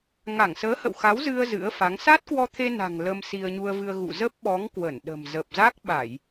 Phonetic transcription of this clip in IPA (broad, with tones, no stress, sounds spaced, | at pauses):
ŋ a˧˩ ŋ s əː˨˦ h ə̰˧˨ w x a˨˦ w z ɨ˧ ə̯ z ɨ̰˧˥ ə̯ f a˨˦ ŋ s a˦˥ t̚ k w ɔ˧ t̪ʰ e˧ n a̤˨˩ ŋ l ə˧ m s i˧ ə̯ ɲ u˧ ə̯ v ɨ˧ ə̯ ɣ ṵ˧˨ z ə˦˥ p̚ ɓ ɔ˨˦ ŋ k w ə˧˩ n ɗ ə̤˨˩ m z ə˨˩ p̚ z a˦˥ k̚ ɓ a˧˩˨ j